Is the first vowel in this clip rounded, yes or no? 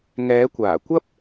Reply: no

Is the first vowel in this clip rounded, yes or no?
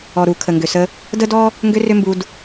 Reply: yes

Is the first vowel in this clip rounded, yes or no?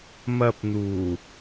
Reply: no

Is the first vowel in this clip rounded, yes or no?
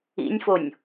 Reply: no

